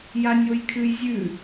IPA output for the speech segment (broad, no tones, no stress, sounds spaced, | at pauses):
j a nʲ o j kʰ ʉ j zʲ ʉ